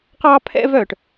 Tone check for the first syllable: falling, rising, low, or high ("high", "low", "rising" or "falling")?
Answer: high